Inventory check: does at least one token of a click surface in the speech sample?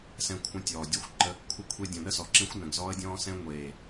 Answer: yes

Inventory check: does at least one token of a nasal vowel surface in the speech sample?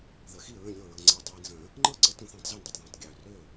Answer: yes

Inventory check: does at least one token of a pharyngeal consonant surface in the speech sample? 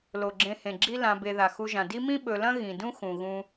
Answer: no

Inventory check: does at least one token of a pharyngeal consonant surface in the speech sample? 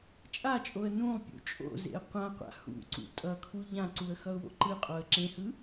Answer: no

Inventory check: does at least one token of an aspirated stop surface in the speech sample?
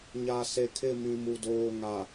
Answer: yes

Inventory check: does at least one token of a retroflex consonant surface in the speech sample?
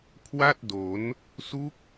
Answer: no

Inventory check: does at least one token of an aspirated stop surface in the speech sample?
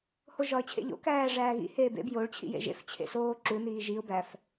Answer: yes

